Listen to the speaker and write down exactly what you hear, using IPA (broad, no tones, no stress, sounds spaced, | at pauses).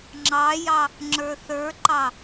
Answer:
ŋ͡ǁ ɑ j ɑ | ŋ͡ǁ ə˞ θ ə˞ ǃ ɑ